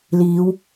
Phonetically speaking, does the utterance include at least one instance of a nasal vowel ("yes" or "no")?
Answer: no